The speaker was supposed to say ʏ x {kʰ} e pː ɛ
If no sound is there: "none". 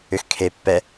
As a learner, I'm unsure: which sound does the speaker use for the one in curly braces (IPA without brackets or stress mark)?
kʰ